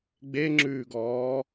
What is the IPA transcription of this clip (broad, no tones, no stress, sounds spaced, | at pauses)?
ɡ͡b e ŋ͡ǁ ʉː ɡ ɔː